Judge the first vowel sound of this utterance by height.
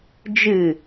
high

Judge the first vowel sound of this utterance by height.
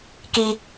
high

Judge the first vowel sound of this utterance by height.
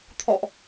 mid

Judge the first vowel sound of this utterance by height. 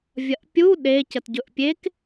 low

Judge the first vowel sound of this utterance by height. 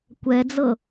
mid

